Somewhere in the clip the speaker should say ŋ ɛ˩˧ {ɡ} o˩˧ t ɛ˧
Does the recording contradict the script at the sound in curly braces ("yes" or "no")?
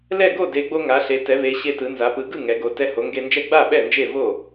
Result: no